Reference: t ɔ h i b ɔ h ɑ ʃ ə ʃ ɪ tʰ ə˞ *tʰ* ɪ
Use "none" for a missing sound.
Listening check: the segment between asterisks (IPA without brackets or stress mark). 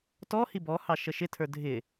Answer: dʱ